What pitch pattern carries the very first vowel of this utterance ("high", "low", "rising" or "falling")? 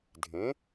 rising